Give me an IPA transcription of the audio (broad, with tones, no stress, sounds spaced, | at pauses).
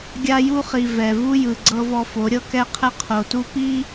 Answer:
ɡʲ a˦ j u˦ χ i˨ v ɛ˨ v u˦ j ɯ˨ ɡ͡ǀ ɤ˦ v ɔ˦ f o˨˦ ɾʲ ɤ˦ k ɛ˦ qʰ ɛ˦ qʰ o˨ t u˦ p i˦